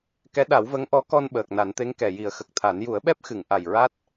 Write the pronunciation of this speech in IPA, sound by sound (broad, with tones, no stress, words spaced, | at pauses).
kɛ˧˥ ɗa˨˩˦wvə˧˥ŋʔɔ˧˥ kɔ˧n ɓəː˨˩k̚na˨˩˦nt̪e˧˥ŋ kɛ˨˩ji˨˩˦ə̯xə˨˩k̚t̪ʰa˨˩˦n ju˨˩˦ə̯ɓɛ˦˥p̚xɨ˨˩˨ŋ ʔa˨˩jɹa˦˥t̚